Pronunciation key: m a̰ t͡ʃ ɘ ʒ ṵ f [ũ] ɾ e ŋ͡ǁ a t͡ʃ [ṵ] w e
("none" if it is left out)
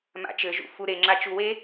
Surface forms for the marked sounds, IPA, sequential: u, u

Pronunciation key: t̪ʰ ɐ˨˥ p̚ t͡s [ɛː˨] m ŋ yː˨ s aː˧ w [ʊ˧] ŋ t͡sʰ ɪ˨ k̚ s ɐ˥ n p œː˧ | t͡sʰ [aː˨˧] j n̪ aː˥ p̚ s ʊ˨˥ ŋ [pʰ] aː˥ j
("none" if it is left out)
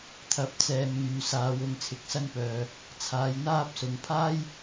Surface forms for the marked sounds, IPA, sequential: ɛː˨, ʊ˧, aː˨˧, pʰ

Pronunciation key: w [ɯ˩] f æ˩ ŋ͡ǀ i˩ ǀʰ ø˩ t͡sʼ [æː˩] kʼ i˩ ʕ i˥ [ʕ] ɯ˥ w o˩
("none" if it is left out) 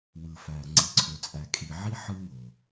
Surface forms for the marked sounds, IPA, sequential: ɯ˩, æ˩, ħ

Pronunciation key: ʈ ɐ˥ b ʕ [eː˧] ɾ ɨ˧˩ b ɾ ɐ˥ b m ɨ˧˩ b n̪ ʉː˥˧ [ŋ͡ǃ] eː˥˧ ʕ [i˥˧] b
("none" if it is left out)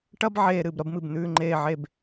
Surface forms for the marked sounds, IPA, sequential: eː˧, ŋ͡ǃ, e˥˧

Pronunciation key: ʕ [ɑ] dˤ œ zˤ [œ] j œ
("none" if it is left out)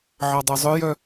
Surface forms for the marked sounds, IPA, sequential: ɑ, œ

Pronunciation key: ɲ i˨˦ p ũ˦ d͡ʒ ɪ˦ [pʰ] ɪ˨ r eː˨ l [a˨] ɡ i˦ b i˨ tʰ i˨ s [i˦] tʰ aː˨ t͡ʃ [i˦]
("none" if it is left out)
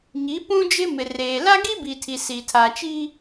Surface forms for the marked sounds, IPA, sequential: m, a˦, i˨, i˦

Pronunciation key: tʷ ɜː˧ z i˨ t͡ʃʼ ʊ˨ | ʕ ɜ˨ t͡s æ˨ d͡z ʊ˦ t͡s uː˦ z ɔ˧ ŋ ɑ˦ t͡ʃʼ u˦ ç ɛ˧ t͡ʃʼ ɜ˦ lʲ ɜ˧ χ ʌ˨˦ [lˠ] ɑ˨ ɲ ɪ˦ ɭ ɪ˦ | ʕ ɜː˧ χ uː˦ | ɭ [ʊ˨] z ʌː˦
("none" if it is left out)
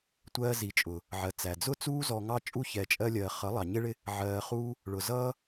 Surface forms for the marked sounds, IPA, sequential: lˠ, ʊ˨

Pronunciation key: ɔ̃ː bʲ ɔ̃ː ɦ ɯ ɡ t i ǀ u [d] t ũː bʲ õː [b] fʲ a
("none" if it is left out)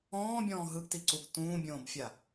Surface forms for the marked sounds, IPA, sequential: ɡ, b

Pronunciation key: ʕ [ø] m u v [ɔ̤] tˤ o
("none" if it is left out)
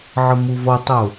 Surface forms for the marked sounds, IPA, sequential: ə, ɔ

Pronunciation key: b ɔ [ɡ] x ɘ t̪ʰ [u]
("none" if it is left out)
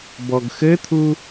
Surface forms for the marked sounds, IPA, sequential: ɡ, u

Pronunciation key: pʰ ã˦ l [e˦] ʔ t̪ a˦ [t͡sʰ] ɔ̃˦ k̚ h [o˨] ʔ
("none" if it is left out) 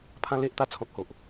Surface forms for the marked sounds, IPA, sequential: e˦, t͡sʰ, o˨

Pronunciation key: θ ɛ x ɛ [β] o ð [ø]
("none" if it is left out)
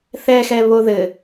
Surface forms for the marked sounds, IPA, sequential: β, ɘ

